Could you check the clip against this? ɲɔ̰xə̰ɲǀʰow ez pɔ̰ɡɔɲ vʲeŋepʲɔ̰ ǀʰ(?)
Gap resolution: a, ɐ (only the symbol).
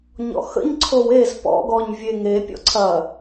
ɐ